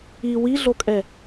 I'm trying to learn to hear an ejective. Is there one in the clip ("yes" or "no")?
yes